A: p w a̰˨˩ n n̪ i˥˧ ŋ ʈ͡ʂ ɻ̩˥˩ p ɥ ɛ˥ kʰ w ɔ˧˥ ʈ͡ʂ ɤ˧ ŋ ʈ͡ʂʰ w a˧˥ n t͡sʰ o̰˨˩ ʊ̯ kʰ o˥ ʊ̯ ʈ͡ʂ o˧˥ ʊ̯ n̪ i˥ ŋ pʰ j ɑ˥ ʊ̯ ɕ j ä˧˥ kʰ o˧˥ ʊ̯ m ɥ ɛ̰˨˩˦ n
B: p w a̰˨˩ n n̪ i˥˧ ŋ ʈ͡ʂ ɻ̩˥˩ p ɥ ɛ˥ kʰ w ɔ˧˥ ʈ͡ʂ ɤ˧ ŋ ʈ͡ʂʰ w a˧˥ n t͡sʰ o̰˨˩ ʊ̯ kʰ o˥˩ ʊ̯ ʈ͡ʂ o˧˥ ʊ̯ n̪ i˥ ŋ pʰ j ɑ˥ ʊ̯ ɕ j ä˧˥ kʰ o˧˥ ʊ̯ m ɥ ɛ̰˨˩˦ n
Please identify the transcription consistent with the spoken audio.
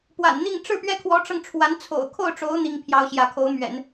B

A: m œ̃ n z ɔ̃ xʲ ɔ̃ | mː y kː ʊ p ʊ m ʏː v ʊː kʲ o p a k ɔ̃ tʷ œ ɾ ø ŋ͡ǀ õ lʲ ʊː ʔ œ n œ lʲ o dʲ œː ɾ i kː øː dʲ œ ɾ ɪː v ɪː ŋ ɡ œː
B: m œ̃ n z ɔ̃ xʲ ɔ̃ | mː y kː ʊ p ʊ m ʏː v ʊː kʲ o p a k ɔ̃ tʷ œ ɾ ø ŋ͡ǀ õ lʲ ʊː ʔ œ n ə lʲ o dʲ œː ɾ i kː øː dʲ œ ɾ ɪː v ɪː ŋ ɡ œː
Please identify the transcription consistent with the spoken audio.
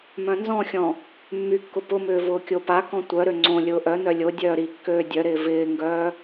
A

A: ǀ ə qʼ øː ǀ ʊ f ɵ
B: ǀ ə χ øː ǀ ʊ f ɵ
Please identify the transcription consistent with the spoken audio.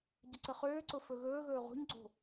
B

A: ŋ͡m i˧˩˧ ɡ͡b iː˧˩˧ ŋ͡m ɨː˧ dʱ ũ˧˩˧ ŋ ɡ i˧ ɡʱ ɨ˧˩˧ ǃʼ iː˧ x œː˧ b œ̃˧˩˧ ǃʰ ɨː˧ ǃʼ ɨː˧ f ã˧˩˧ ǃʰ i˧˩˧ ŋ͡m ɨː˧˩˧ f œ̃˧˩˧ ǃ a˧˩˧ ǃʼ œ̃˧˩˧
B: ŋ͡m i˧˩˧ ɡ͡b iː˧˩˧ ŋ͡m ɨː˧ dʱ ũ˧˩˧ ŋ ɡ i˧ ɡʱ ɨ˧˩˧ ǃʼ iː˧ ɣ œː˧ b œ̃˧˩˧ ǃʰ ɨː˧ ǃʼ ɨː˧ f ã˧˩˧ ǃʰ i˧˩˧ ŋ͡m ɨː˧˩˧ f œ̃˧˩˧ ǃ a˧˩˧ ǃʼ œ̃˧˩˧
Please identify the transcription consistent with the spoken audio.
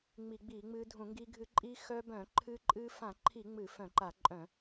A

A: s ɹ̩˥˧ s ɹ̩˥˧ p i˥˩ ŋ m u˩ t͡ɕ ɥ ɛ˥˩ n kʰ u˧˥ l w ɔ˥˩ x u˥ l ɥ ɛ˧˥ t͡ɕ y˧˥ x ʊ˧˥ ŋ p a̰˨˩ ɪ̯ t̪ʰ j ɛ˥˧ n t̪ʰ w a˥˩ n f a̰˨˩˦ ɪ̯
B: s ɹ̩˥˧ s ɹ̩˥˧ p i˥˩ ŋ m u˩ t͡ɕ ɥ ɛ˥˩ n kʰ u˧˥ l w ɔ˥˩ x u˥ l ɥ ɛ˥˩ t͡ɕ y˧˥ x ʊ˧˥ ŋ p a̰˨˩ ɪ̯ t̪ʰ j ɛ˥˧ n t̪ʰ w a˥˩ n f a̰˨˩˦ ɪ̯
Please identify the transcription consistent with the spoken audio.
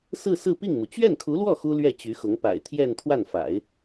B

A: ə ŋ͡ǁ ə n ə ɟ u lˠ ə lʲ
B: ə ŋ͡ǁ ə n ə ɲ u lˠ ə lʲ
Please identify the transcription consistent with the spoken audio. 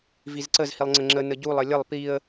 A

